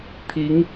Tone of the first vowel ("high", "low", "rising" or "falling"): rising